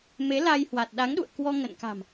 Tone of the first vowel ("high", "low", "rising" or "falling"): rising